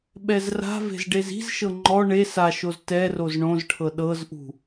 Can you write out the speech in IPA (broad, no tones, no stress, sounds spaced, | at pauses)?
ɓ ɛ z r a̤ v e̤ z ɖ e z i̤ z ʃ ɤ ŋ͡ǃ ɔ ɳ e s a ʃ o z t ɛ r o z ɳ õ z ʈʰ ɤ ɗ ɤ z ʔ ṳ